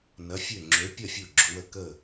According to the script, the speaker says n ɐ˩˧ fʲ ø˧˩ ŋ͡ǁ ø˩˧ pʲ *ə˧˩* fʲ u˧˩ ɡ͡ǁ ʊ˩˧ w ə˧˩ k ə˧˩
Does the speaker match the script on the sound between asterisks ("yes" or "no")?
no